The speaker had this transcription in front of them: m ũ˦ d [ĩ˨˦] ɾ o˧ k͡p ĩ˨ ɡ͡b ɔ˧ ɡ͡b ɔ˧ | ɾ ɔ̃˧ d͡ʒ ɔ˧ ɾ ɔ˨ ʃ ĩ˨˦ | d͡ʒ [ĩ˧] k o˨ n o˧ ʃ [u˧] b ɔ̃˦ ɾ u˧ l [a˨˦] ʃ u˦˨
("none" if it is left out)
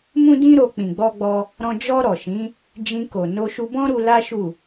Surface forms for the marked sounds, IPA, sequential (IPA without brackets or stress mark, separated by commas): ĩ˦, ĩ˧, u˧, a˦